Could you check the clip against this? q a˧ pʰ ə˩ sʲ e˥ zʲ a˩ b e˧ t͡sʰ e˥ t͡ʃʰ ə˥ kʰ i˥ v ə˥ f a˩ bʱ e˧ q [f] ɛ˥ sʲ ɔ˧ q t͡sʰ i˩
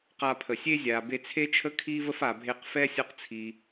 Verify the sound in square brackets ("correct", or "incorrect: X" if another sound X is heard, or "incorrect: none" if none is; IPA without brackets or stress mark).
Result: correct